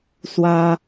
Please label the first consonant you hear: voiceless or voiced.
voiceless